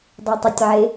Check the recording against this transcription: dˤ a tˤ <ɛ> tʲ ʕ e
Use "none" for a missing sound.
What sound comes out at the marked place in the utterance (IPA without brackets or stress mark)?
e